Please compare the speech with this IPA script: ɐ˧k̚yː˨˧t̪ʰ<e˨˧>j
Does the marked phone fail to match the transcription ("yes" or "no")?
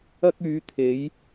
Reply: no